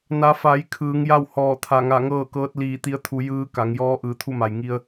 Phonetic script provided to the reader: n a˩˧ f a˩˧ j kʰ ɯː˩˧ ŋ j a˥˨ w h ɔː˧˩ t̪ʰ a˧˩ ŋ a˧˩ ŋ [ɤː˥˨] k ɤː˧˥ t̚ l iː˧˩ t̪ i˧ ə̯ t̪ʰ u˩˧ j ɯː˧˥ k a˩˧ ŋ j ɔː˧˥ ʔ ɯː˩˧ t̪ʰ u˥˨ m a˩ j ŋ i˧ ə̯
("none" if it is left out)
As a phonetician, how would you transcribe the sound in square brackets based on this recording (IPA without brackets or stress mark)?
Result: ɤː˥˨